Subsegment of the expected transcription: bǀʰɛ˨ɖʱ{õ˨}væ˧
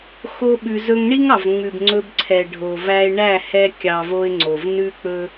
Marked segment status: incorrect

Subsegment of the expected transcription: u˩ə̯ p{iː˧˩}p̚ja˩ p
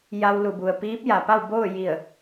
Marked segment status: incorrect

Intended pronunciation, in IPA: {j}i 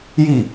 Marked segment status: correct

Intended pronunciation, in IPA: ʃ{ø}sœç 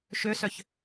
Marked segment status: correct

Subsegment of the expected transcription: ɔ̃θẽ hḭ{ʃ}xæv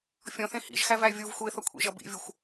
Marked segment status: incorrect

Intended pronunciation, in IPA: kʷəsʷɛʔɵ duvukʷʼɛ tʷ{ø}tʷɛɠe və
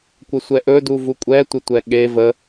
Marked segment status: incorrect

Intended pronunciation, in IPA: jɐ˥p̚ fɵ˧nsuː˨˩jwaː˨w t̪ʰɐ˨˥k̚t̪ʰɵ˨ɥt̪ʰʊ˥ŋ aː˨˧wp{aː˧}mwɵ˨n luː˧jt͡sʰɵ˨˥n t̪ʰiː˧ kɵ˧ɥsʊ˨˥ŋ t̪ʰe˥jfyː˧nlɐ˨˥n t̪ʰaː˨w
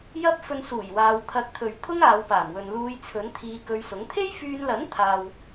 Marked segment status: incorrect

